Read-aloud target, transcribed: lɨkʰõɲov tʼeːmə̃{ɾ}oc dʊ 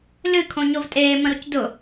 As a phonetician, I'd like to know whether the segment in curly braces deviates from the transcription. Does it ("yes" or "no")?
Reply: no